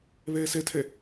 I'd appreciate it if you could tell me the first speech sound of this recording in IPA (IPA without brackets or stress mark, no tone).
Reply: β